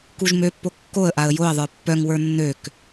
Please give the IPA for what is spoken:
k u ʒ m ø pː o kː o ə̯ ʔ a ə̯ j o ə̯ ðˤ ə˞ pː œ ŋ w ə˞ nː ø k

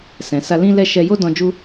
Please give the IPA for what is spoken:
s ɛ̃˨ s a˧ l ĩ˦ l ɛ˦˨ ʃ ɛ˧ j o˦ d ɔ̃˧ d͡ʒ u˦

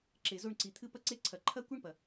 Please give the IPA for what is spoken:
ǁ e˨ z o˦˨ ɳ ǀ i˨ t̪ʰ ɨ˦ p ɐ˦ ǀ e˦ ǀʰ ɐ˨ ǃʰ ɐ˦ kʷ i˦ ɳ p ɐ˨

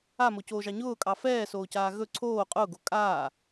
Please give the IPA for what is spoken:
a m o c oː ʒ ɑ ɲ ʊː kʼ ɑ f ɛː s oː c aː ɣ ɵ ǀʰ oː qʼ ʊː ɡ o kʼ aː

